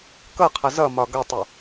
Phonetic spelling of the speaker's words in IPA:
k ʌ qʰ ʌ z ʌ m ɒ ɡ ʌ tˤ u

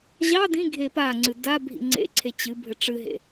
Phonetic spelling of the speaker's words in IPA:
ʑ ɑ d ĩ ɡʱ e p a ŋ͡ǀ ɨ d a bʱ ḭ ŋ͡ǀ ḛ ǀʰ e t͡ɕ ɨ bʱ ɘ ʈ͡ʂ ɨ ɦ ḛ

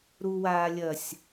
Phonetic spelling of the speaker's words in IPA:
ɾ u w aː lʲ ɐ sʲ

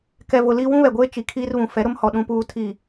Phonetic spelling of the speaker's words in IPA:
k ɛ˨ v ʊ˨ l i˦ w ũ˦ β ɛ˨ ɡʷ eː˦ t͡ʃ i˨ kʰ iː˦ r β ũ˨ f ɛ˨˦ ɾ ʊ˦ m h ɔ˨ ɗ ũ˨ p uː˨ tʰ i˨

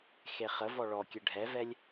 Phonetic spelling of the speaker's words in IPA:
x e χ ə v ɔ ɭ ɔ kʲ ɘ ɖʱ ɛ v ɛ lʲ

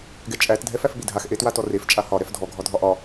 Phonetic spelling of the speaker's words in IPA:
ɡ ɛ t͡ʃʼ æ t dʱ ɛ f æ f ɓ i dʱ a x ʔ e t w a t ɔ r e f t͡ʃʼ a h ɒ ɾ ɛ f dʱ ɔ ɡʱ ɒ dʱ ɒ ʔ ɒ

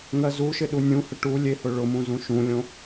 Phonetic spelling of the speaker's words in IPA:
ŋ ɜ z u ʃ ɪ ɗ u nʲ ũ h ə ʈ u lʲ e h ʊ ɭ ʊ m ũ z ũ ʃ ũ lʲ õ

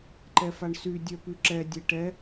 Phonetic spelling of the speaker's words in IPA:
ǃ ɛ f a ɳ s y dʲ œ p y ǁ ɛ dʲ e ʈ ɛ

